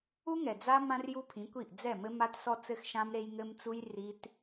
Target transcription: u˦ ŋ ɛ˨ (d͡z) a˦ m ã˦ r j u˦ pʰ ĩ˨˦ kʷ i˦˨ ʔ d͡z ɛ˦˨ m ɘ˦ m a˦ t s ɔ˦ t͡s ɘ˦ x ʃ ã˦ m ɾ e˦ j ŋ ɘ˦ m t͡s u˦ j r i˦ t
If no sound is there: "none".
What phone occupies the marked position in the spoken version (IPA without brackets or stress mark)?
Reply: d͡z